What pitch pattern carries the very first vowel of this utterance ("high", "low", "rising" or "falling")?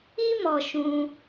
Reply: high